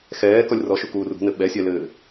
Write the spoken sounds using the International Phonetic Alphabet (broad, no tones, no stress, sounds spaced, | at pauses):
x ɛː k ɔ lʲ r ɔ ʃ u k uː r ṳ n ɘ ɓ ɛ sʲ ɛ l ɘː